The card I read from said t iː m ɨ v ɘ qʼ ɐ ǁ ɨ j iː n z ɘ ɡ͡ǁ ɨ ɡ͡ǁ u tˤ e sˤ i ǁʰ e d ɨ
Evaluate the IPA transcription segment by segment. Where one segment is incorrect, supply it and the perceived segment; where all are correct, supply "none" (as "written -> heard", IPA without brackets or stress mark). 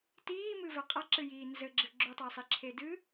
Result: none